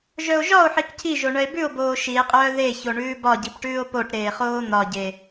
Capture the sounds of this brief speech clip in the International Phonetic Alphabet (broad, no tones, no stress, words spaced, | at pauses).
ʒœo̯ʒɒo̯ħik cʰiʒo ɳœe̯bʉo̯boː ʃie̯qʼœː ðe çoɳʉːbɒɟip ʈʉːo̯poʈɾeː χoːn̪ɒɟe